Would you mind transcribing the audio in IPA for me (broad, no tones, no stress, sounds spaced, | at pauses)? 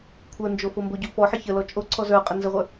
kʷʰ ə˞ n d͡ʒ o f o m b o ɟ o f ɔ ħ ə ç ə l ɔ t͡ʃʼ o ǀʰ ɔ z ə˞ qʼ ə n z ə ʁʷ ə˞